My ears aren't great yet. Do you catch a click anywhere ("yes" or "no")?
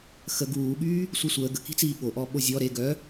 no